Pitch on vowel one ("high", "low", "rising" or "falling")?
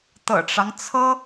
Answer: low